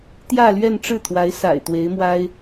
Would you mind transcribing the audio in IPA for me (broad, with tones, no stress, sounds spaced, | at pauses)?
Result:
t̪ j ä˥˧ l ɥ ɛ˥˧ n ʈ͡ʂ ɻ̩˥˩ t̪ʰ w a˧˥ ɪ̯ s a̰˨˩ ɪ̯ t̪ w e˧˥ ɪ̯ m w a˥ ɪ̯